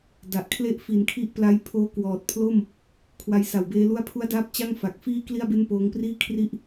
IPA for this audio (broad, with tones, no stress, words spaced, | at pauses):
da˨˩ʔkʰle˥˩ʔ fi˨˩nkʰi˦˥ʔpla˧jpʰoː˦˥ kwɔː˨˩t̚pʰlo˥˩m | kʰwa˧jsa˨˩wbeː˦˥ lu˦˥a̯pʰu˦˥a̯daː˦˥p̚ t͡ɕa˥˩ŋ fa˨˩k̚fiː˥˩ kli˥˩a̯be˥˩npoː˦˥ŋpriː˥˩ kʰri˥˩ʔ